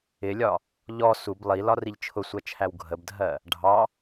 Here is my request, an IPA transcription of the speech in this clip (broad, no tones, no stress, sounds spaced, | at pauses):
ɪ lʲ ɒ | ʎ ɔ s u b lˠ i l ɒ r i ʎ t͡ʃʰ ʊ sʷ ɜ t͡ʃʰ æ w ɡʱ ə b dʱ ɜ | ɖʱ ɑ